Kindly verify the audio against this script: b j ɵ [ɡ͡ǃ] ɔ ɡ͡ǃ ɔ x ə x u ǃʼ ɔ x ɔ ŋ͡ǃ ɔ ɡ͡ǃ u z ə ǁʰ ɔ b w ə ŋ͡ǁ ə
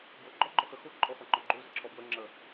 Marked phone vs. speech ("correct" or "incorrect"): correct